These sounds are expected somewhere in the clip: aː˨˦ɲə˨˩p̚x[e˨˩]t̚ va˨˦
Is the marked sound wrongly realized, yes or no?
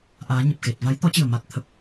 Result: no